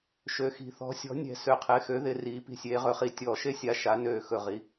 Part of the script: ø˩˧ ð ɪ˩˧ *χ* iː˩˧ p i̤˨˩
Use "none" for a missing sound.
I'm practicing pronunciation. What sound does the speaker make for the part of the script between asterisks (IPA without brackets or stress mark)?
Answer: r